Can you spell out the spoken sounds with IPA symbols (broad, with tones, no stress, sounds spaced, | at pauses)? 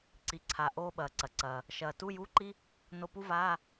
ǀ i˩ ǀʰ a˩ ʔ oː˧ ɓ ɐː˩ ǀ ɐ˩ ǀ ɐː˩ | ʃ ɐː˩ t u˧˥˧ j u˧˥˧ ǃ i˥ | n o˧˩ p u˥ v aː˧˥˧